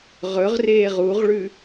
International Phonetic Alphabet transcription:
ʁɵʁ reːʁuʁɭʉ

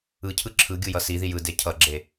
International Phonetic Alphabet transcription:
ɯcʰɯ ǁʰɯɡʲɯ jʌsiði jɯ decʰʌɡ͡ǁe

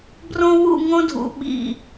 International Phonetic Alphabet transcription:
brõ˥ wṵ˥˧ŋõ˥dʱṵ˩˧ ɓḭ˧˩

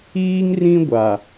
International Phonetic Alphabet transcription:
iː˦ŋrĩ˦ ɡʷa˨

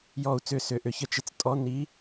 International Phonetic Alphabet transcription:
jɔ˧˩u̯t͡sʏ˧˩sʏː˩˧˩ʔʏ˨˦ çə˨˦t͡ʃɪ˨˦t͡s tʼɔ˧˥˧ ni˨˦

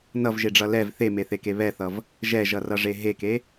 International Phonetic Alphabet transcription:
nʌvʒeɖ͡ʐʌ lɛv θemeθeke βɛθʌv | ʒɛʒʌrʌʐe ɦeke

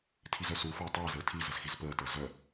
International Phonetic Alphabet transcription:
tʰizœsufɐː tˤɐːzəː tʰizəz xizpəːtəː zœ

